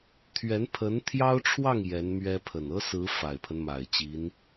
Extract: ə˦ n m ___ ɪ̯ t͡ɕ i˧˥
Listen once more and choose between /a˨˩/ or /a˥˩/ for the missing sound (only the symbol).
a˨˩